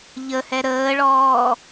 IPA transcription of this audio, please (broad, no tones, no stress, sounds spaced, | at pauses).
ʎ ə h ɛ ɾ əː ɭ ɔː